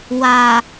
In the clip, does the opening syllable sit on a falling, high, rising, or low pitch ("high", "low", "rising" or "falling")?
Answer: low